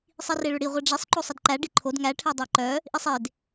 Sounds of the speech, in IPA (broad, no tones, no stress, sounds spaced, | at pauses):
sˤ i r e ɭ ʏ ɽ i ʁʷ e ɖ͡ʐ e sˤ ǃ o sˤ ʌ d ǃ æ ɖ i ǃʰ o d ŋ æ ʈʰ ɛ dˤ æ ǃ œ | ʔ i sˤ e d